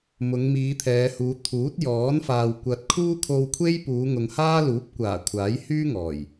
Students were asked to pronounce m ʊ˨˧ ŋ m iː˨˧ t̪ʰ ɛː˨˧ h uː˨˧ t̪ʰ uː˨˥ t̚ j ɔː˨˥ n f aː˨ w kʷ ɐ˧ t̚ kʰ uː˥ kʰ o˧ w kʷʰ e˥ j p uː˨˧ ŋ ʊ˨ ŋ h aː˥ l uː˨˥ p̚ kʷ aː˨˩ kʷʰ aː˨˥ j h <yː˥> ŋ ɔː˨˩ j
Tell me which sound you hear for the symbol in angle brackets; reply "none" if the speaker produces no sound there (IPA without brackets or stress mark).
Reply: yː˥